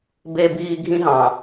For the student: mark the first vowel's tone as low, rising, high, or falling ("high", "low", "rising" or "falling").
high